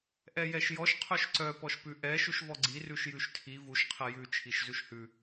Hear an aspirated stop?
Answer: yes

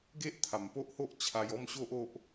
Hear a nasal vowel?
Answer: no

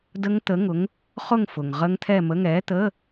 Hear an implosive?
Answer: no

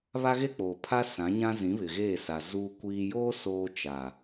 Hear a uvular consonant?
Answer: no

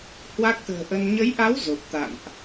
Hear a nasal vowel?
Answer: no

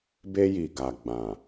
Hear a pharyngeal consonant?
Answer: no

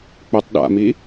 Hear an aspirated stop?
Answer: no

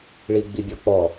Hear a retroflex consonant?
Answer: yes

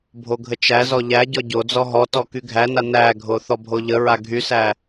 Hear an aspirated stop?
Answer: no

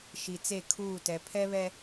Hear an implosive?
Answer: no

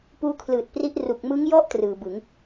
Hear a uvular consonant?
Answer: no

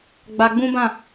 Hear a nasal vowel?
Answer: yes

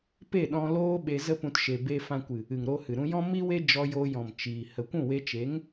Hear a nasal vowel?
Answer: yes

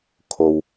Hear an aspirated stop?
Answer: yes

